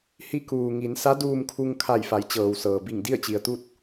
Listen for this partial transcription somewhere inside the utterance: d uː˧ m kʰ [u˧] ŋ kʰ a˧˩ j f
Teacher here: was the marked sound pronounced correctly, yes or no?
yes